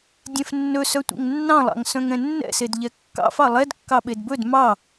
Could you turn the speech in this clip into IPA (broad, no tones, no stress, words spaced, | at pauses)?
dʲɛ̃fnːɵ sœtʷḛŋnːɑ̃lˠɑ̰ŋ sœ̃ŋɛ̃nːɛ̰sed ʎɛkːɑ̰f ɑlˠɛd kːɑɓedbɵd mɑ